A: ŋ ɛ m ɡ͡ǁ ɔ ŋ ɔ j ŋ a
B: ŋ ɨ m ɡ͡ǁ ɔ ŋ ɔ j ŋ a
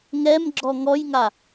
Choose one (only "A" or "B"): A